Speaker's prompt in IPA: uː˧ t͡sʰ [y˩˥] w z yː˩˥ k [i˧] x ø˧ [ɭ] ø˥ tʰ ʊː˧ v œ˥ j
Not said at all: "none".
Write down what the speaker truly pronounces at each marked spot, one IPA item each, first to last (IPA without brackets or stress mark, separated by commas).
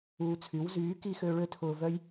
y˩˥, i˧, ɭ